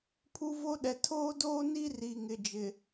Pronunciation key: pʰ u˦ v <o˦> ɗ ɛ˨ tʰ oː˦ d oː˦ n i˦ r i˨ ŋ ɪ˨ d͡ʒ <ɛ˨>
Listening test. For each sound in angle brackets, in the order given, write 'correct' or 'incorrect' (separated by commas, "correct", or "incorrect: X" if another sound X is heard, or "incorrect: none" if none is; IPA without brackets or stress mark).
correct, incorrect: ɪ˨